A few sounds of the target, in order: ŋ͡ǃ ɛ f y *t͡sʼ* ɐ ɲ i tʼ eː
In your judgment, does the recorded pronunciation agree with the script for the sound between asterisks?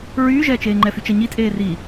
no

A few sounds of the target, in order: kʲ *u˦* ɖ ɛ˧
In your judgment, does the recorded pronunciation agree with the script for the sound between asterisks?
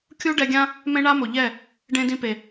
yes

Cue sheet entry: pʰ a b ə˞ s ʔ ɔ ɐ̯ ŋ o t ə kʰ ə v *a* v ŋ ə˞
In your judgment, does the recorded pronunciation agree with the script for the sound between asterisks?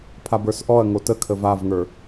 yes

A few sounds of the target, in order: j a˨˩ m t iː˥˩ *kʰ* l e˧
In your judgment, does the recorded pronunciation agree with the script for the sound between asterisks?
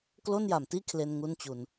yes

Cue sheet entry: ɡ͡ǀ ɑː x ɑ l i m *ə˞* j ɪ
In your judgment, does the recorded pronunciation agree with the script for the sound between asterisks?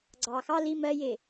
no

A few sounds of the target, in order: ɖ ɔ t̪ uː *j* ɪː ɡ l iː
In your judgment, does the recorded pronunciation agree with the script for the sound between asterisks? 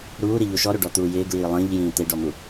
yes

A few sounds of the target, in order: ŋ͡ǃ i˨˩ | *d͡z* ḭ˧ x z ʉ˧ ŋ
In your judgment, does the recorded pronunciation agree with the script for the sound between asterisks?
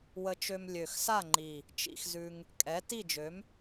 no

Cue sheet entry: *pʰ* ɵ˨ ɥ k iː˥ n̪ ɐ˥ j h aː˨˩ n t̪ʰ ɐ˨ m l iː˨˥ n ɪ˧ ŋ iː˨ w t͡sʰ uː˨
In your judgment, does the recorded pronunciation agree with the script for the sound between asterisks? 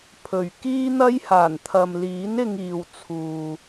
yes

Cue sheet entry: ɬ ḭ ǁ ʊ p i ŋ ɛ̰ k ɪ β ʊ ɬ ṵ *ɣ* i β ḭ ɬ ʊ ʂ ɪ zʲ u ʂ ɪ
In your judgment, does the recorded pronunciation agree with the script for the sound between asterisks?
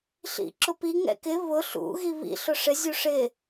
yes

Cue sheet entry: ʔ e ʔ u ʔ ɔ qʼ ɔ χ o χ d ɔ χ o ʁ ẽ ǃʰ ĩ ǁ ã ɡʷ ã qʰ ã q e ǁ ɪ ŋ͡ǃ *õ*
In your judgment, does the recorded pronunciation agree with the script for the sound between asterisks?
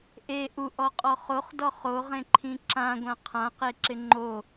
no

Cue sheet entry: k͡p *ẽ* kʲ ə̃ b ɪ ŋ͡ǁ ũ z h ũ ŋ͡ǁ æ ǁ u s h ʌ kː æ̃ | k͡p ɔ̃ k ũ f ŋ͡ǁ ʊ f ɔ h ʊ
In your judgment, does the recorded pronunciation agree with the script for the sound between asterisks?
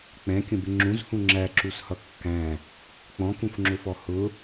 no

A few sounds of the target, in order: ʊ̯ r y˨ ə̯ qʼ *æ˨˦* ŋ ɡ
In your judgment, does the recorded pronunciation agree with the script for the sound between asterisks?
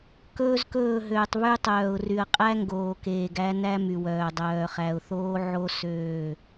no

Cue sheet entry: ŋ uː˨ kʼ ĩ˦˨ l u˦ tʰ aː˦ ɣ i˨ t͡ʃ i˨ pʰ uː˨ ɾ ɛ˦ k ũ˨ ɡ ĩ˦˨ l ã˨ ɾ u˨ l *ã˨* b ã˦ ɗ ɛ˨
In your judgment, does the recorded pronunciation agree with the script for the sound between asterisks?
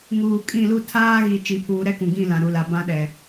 no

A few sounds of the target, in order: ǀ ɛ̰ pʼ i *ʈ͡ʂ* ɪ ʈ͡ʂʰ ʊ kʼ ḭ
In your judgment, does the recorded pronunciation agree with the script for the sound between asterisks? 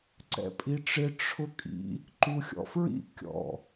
yes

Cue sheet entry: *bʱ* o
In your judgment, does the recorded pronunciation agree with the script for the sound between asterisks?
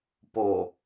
no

